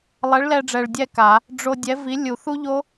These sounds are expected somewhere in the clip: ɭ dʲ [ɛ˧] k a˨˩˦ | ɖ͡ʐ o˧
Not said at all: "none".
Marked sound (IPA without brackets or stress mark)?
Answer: ɛ˥˨